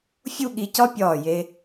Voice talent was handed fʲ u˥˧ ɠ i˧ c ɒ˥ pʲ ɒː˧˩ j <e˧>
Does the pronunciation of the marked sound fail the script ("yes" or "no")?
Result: no